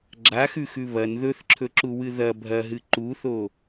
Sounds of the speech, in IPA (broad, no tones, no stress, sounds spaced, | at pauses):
ɡ͡ǁ a x ʉ x ʉ β ɐ n ð ɵ θ ǁʰ ɵ ǁ u w ɨ ð ɐ bʱ ɐ ɦ ɨ ǃ u θ o